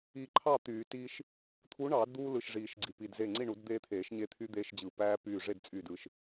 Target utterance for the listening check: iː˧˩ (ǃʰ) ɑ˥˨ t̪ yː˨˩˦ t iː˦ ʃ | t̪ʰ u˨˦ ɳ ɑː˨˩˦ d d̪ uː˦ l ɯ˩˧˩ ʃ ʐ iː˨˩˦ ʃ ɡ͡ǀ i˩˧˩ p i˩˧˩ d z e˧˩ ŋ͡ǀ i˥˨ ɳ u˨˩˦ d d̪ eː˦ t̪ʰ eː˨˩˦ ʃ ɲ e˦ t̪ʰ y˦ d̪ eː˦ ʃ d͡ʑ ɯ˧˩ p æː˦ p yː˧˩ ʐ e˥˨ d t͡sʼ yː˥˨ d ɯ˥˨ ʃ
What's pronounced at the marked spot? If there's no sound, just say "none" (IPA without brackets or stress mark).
ǃʰ